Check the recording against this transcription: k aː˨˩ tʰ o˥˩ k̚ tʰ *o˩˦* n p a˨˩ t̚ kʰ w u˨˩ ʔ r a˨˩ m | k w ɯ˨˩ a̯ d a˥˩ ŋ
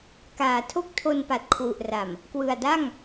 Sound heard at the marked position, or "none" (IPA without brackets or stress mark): o˧